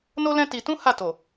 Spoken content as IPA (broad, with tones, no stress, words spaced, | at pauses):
no˦lɛ̃˦ ti˧ tũ˦ ha˦˨to˨